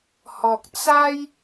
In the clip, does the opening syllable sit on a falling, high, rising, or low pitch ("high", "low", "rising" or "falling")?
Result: low